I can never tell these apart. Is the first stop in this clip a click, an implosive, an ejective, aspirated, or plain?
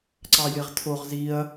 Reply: click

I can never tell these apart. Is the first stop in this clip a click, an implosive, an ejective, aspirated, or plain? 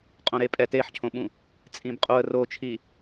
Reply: ejective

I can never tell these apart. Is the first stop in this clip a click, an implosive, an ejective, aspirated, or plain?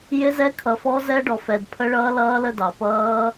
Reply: aspirated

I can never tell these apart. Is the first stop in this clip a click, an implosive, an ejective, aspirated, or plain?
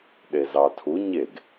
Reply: implosive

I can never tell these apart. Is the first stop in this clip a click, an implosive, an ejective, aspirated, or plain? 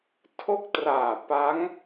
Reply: aspirated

